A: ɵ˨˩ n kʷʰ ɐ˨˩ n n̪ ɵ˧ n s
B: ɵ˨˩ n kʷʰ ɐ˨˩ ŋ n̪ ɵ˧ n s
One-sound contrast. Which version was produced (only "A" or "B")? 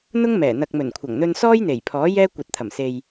B